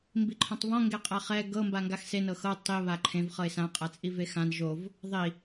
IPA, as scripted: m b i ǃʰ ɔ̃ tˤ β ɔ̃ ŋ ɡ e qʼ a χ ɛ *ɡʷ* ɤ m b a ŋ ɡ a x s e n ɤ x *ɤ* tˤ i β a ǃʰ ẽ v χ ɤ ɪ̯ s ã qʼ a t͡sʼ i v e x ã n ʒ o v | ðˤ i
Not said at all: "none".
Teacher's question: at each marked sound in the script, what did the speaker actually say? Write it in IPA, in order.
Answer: ɡ, ɤ

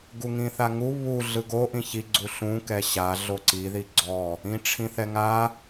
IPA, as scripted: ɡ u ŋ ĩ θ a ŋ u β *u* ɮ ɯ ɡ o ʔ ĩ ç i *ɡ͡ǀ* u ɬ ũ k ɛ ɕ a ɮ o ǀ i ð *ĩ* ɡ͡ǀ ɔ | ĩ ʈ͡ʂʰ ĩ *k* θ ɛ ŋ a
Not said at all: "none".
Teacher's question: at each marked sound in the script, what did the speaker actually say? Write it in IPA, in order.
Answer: u, ɡ͡ǀ, i, none

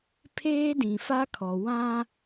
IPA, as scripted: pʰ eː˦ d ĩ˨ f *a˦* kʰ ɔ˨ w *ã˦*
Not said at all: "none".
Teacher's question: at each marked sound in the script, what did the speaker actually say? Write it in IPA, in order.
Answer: a˦, ã˦

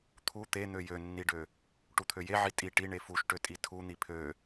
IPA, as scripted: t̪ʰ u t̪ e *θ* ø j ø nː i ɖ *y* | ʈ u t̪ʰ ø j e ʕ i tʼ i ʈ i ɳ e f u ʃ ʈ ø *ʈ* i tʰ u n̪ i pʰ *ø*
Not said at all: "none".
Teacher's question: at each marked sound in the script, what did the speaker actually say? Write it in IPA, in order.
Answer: n̪, ø, tʼ, ø

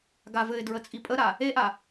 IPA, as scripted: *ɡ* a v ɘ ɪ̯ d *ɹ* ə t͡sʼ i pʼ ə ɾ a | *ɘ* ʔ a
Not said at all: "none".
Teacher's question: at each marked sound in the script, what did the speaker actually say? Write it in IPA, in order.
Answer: ɡ, ɹ, e

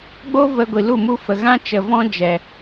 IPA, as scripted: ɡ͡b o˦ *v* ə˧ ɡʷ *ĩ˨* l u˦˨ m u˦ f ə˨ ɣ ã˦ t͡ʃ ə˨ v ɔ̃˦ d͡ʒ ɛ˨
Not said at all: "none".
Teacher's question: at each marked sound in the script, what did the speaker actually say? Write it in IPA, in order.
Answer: v, i˨

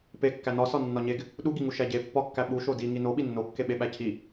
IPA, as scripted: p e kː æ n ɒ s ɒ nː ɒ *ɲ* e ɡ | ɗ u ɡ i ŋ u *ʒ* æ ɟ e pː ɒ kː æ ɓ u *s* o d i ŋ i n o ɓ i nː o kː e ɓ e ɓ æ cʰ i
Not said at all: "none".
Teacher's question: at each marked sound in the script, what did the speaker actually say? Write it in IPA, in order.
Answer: ɲ, ʃ, ʃ

